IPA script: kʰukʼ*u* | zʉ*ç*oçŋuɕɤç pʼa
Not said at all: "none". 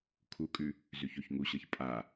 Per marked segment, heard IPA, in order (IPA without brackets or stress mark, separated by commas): ʉ, ç